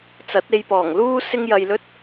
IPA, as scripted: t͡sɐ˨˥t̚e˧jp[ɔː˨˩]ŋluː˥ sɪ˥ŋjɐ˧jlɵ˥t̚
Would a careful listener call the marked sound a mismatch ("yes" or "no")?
no